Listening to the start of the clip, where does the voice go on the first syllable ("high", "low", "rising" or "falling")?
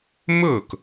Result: falling